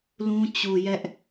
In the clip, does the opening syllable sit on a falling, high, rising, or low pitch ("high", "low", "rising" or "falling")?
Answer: high